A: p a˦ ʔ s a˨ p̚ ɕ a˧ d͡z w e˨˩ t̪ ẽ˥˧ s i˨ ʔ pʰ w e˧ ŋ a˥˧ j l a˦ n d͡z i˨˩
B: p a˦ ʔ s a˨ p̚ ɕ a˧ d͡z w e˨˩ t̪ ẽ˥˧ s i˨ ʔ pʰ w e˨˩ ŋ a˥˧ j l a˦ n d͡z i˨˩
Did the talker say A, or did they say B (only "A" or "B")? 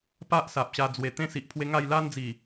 A